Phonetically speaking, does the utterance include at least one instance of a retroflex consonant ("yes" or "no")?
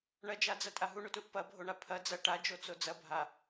yes